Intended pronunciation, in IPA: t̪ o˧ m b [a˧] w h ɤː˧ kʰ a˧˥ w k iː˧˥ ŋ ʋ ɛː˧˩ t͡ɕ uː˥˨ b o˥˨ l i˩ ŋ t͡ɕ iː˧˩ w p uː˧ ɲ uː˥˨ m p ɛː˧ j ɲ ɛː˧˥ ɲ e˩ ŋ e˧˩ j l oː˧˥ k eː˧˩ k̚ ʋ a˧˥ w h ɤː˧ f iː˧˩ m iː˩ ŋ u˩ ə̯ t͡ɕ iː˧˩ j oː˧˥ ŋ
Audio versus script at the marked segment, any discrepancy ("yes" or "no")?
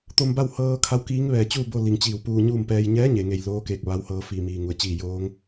yes